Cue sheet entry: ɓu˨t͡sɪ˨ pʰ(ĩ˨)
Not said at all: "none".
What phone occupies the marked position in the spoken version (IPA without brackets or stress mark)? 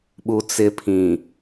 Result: ĩ˨